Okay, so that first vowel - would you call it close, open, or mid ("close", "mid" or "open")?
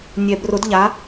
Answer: mid